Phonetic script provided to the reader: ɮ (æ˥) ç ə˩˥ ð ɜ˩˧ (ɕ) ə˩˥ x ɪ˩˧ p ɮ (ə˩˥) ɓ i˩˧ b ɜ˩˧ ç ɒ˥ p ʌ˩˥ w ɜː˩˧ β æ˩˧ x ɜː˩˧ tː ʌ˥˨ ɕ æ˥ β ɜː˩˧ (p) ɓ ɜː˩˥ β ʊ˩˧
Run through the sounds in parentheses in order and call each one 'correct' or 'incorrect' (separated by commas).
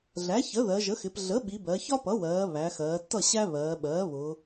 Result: incorrect, incorrect, correct, incorrect